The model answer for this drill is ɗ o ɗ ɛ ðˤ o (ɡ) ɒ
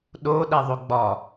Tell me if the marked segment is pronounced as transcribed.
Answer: no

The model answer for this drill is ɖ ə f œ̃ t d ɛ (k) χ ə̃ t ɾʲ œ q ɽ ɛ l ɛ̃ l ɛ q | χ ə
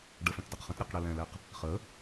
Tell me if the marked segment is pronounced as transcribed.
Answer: no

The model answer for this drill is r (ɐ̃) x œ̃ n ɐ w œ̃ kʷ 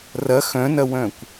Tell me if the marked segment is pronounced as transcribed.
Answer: no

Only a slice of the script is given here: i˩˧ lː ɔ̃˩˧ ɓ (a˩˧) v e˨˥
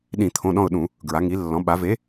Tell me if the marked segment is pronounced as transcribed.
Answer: yes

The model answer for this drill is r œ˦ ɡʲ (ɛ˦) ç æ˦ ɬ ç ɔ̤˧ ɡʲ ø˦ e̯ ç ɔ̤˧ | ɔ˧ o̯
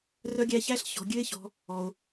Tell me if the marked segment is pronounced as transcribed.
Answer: no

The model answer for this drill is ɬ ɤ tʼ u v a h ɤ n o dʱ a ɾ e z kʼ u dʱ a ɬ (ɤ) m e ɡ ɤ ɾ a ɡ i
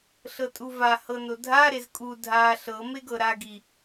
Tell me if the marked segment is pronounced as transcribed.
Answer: yes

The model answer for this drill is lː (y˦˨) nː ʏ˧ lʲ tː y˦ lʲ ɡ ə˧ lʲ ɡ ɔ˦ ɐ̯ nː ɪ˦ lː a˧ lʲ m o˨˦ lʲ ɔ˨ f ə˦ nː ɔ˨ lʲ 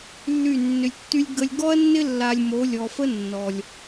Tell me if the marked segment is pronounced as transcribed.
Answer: yes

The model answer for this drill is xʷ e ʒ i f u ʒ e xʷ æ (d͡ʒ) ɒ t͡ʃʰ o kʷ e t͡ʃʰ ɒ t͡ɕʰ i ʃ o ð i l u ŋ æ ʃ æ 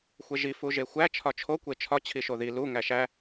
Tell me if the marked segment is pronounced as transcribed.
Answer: no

